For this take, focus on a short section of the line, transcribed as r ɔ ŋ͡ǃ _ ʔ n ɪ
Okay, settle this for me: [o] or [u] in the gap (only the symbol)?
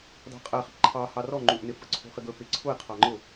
u